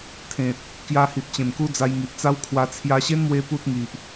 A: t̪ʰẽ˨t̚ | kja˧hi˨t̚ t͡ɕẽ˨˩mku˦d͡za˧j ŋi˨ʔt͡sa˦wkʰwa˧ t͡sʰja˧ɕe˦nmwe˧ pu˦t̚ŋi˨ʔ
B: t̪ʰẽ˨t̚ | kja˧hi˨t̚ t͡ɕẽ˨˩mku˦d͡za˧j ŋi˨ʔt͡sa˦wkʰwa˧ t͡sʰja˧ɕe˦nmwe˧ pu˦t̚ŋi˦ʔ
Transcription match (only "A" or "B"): A